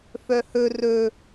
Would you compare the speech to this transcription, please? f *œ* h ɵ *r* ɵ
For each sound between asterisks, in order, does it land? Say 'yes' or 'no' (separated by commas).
yes, yes